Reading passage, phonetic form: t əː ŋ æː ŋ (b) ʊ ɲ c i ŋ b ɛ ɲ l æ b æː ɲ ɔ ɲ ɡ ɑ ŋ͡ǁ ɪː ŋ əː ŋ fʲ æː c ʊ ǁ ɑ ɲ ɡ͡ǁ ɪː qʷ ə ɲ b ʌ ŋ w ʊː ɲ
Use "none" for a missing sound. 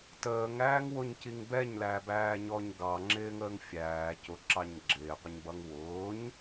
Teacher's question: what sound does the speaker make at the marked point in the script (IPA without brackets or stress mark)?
w